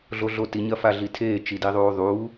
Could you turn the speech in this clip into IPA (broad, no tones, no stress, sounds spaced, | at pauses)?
ɮ o ɮ o t i ɲ ɐ f a ɮ i tʰ eː t͡ʃ i d i ðˤ uː ðˤ uː